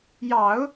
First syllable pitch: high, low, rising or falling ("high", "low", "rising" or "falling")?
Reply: low